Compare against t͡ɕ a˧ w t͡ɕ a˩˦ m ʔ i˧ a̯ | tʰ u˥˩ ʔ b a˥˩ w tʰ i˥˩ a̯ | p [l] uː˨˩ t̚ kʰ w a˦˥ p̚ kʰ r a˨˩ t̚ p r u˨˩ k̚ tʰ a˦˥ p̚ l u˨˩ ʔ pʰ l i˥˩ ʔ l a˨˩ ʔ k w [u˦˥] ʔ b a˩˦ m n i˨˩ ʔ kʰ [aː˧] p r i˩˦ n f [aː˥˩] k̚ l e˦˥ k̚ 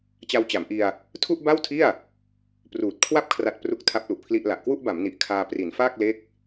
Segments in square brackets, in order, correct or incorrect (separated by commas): incorrect, incorrect, correct, correct